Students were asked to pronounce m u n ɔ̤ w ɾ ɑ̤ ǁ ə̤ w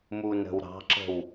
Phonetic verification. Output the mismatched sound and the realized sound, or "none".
ɔ̤ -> ə̤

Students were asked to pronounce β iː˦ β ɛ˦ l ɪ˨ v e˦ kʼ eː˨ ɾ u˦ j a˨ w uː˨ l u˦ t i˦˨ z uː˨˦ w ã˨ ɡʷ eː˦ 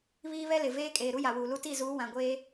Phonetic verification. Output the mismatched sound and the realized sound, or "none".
e˦ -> eː˦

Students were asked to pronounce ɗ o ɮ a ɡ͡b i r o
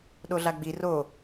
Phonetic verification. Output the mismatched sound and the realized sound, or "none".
none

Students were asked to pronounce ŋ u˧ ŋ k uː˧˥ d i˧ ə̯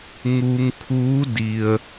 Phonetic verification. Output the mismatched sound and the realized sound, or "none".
k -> kʰ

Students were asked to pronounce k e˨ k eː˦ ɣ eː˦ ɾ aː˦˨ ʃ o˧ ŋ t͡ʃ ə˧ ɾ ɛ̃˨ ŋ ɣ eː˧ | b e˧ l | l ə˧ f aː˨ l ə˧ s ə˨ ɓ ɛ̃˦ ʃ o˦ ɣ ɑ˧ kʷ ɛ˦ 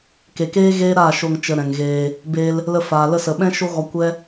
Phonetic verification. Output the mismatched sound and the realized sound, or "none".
ɑ˧ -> ɔ˧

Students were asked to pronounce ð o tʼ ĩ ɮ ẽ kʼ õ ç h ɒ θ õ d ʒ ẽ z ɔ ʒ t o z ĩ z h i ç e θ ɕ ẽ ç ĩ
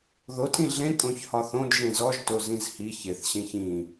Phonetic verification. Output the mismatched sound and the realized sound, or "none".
none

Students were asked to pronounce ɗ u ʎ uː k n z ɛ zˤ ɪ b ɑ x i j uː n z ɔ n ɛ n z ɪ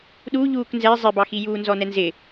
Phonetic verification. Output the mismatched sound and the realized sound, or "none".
none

